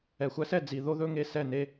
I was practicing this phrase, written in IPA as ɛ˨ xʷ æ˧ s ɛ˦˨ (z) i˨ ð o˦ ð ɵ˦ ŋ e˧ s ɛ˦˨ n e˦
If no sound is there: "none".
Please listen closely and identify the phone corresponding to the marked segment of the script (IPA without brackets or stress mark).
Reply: d͡z